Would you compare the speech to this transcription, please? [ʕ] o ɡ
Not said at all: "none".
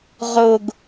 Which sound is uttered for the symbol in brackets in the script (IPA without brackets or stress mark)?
ʁ